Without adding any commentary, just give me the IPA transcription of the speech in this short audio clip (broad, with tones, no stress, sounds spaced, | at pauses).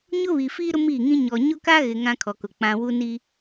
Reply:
ɲ ʊ˦ β i˨ f iː˦ ɾ ʊ˦ m iː˦˨ ŋ ĩ˦ ɲ ɔ˨ ɲ ʊ˦ k a˦ ɣ ɪ˨ ŋ ã˦ kʰ ɔ˨ k ʊ˨ k͡p ã˦ w u˦ n i˦